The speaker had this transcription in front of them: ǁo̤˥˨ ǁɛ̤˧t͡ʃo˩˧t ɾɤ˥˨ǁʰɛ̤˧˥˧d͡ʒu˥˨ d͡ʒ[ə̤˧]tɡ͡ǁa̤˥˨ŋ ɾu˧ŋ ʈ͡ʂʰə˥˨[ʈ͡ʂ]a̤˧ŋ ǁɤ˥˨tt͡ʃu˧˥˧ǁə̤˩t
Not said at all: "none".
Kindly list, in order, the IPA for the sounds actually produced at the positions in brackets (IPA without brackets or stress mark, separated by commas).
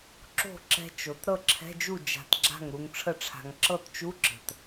a̤˧, ʈ͡ʂʰ